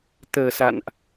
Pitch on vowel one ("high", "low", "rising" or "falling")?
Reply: low